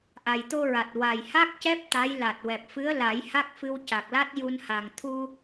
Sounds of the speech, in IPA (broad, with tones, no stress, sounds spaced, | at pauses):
ʔ a˨˩ j t̪ o˧ ɹ a˨˩ t̚ w a˨˩ j h a˦˥ k̚ c ɛ˦˥ p̚ t̪ a˧˥ j l a˨˩ t̚ w ɛ˨˩ p̚ f ɨ˧˥ ə̯ l a˨˩˦ j h a˦˥ k̚ f ɨ˧ w c a˨˩ k̚ l a˦˥ t̚ j u˧ n h a˨˩ ŋ t̪ʰ u˧